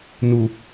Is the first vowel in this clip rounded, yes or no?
yes